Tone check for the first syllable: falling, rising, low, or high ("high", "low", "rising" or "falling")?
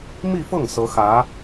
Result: falling